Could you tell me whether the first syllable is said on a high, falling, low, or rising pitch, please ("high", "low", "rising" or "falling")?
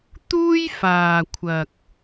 high